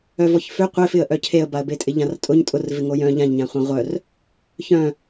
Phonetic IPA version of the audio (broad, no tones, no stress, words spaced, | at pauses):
œvɔçfø qʷefɪə̯ʔœ cʰeə̯baə̯betʼɪ ʎãrtʼʊɲ tʼʊrvɪ ŋojœ̃ ʎãʎɲãχʷã ʁʷœr | çœ̃